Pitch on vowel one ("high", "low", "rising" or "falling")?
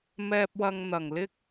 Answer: low